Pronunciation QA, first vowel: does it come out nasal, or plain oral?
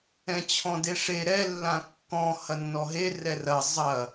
nasal